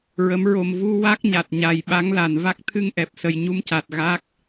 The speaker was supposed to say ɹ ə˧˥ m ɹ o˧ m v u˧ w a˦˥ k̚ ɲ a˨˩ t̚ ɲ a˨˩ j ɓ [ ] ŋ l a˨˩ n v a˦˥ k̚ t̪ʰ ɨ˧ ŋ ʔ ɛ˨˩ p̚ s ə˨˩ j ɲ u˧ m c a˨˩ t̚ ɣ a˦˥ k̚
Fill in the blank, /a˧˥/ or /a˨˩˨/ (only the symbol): a˧˥